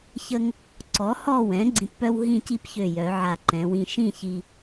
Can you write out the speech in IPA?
çə˧ŋ | ǀɔ˩˧hɔ˧˩wɛ̃˩˧ ɡ͡ǀĩ˧tpœ˥w ɦĩ˥˧ci˥pçø˧˩jœ˩˧ ʕa˧˩ǃɛ̃˩˧wĩ˧ ʃĩ˥˧çi˧

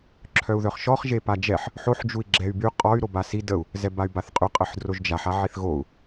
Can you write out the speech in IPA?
ǁʰœu̯ðœχʃɔχ ʒepad͡ʒɛħ | ħoħ d͡ʒui̯ɡ͡ǁɛy̯by qʼɔy̯ ɾobasi dəu̯ | zɛbay̯baθqʼy qʼəħdroʒd͡ʒaħ aʕiθɣou̯

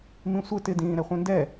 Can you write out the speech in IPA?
mĩsʷɪ tɪdĩː ɾɛχʷĩndɛ

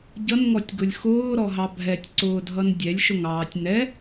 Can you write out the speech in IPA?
ɟʌnŋɔtʲɡʊlʲ xʊːɾɔɦɑ bʱɛtʲǀʊːdʱʌn dʲɛlʲʃʊŋɑːtʲ nɛ

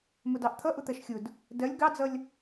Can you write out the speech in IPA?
mʊdɑʔt̪ʰʌ ʔʊt̪ɜʃxʲʊd | dɜlʲ ɡɑd͡zʌlʲ

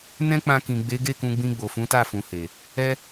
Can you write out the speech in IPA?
nɛ̃˦k͡pã˧kĩ˨ ɡ͡be˨˦ɡe˦˨ kũ˧ɡ͡bĩ˧ ɡ͡bo˨fũ˨˦ta˦˨fũ˨ he˨ | ɛ˧

